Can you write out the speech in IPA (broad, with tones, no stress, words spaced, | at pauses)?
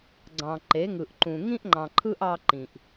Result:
ɡ͡ǀɑ̃˨ǃe˨˦ŋɯ˨ʔ ǃũ˨ ŋĩ˦ʔŋ͡ǃɑ̃˨ǃʰɯ˦ʔ ɑ˦ ǃĩ˨ʔ